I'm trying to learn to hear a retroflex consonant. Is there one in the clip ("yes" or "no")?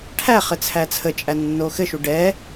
yes